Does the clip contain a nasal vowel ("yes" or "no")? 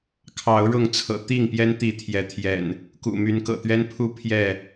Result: no